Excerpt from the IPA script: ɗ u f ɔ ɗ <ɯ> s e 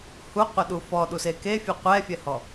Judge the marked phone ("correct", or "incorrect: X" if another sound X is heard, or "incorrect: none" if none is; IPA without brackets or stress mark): incorrect: u